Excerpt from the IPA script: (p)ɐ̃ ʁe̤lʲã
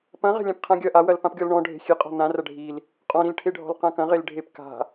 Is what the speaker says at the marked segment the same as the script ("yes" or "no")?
yes